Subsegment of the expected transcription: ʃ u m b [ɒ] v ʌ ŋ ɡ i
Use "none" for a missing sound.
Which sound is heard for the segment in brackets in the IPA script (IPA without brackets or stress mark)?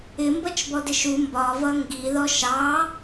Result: ɒ